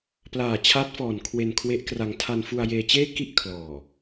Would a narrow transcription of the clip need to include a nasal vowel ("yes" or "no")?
no